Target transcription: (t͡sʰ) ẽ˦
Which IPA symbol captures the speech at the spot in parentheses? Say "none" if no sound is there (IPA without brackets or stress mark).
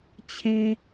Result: t͡ɕʰ